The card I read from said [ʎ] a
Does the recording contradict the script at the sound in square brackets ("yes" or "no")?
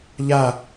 no